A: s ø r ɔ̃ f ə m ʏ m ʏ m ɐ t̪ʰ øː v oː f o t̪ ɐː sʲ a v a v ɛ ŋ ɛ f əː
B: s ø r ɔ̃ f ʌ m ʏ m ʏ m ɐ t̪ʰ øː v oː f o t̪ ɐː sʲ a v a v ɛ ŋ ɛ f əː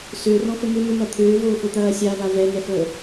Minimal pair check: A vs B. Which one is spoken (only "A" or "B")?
A